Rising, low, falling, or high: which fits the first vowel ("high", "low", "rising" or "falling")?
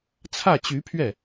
falling